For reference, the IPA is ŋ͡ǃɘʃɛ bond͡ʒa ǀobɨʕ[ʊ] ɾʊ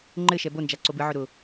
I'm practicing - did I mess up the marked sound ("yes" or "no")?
no